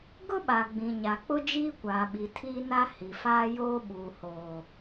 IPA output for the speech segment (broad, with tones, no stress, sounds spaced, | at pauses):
ɡ ʊ˦ ɓ a˨ ɡ͡b ĩ˨ ɲ a˨ k͡p ʊ˦ d͡ʒ iː˦ kʷ aː˨ ɓ i˨ tʰ iː˦ n a˦ h i˨ f aː˦ j oː˦ ɓ uː˨ h oː˨